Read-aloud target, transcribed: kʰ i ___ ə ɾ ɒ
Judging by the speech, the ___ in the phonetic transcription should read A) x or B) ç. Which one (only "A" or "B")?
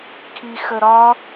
A